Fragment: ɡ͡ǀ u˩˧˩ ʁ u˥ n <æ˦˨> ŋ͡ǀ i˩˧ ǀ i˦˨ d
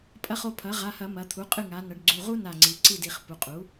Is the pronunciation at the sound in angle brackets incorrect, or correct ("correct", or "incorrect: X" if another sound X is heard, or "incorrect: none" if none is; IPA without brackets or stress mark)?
incorrect: a˦˨